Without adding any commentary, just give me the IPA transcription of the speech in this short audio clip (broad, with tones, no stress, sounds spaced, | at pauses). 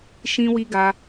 ʃ ĩ˧ w i˧ ɡ a˧